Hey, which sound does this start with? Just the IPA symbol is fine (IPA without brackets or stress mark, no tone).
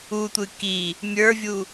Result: u